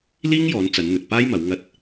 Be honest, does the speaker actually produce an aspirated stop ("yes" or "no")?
no